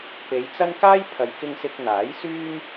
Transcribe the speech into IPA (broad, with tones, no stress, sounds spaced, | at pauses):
p e˨˧ j t͡s ɐ˥ n k aː˥ j pʰ ɐ˨˧ j k ɪ˧ ŋ s ɪ˧ k̚ n̪ aː˨˥ j s yː˥ m